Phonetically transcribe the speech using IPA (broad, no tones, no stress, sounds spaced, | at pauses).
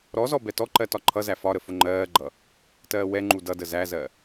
ɾ ɔ z ɔ b ɛ t ɔ ǃ ɜ t ɒ ǃʰ ʌ z æ f ɒ ɾ ə f ʊ ŋ͡ǃ ɜː ɡ͡ǃ ʌ | t ɜː w ɛ ŋ͡ǃ u d ʌ d ə z æ z ɜ